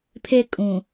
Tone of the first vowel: high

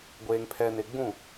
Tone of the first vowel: low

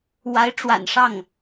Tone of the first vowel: rising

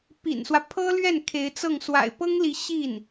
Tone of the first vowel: low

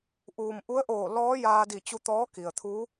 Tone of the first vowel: low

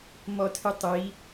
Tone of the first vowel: high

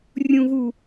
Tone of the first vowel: low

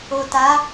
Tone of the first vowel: low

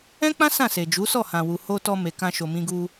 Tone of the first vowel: high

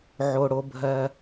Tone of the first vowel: low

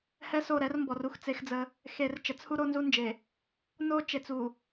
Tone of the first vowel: high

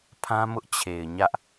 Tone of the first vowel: high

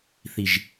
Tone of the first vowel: low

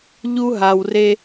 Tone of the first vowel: high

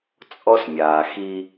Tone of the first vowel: high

